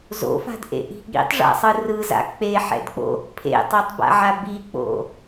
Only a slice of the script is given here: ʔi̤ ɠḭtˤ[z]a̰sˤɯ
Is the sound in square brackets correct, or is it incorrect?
incorrect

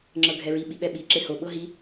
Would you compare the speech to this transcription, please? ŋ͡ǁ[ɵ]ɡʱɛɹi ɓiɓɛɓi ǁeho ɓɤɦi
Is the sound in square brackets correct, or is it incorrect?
incorrect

